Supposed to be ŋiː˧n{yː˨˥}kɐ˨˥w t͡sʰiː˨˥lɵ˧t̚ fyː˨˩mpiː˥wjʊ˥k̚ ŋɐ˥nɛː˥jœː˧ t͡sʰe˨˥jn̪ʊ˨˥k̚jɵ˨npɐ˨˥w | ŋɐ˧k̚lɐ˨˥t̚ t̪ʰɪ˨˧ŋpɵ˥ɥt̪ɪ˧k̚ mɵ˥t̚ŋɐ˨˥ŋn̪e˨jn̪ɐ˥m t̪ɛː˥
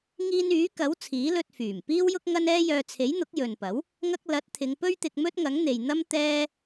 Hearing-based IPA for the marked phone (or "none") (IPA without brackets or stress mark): yː˨˥